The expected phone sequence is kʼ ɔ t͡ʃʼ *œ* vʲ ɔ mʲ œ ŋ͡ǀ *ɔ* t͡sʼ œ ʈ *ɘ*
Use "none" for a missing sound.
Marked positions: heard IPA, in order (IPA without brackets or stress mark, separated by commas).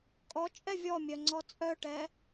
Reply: ɛ, ɔ, ɛ